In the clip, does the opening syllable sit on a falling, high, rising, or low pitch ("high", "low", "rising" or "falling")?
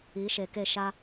rising